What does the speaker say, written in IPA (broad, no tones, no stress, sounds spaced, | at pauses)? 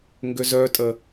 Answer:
ŋ ɡ ʏ z œ tʼ ə